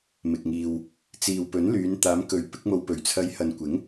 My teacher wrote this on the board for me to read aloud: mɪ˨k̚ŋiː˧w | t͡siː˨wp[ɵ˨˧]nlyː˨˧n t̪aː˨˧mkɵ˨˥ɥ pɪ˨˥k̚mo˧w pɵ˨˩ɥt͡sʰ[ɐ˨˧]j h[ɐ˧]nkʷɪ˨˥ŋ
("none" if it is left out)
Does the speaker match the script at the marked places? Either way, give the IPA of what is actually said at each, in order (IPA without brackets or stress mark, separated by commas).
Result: ɵ˨˥, ɐ˨˧, ɐ˨